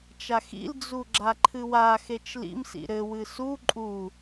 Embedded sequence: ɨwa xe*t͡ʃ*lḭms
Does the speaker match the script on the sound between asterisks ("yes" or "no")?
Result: yes